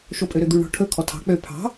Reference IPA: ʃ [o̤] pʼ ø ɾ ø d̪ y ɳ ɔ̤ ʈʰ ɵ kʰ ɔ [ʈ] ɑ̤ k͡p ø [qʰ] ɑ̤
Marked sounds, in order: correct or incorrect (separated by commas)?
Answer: incorrect, incorrect, incorrect